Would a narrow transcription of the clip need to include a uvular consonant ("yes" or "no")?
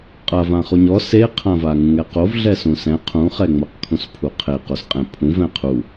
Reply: yes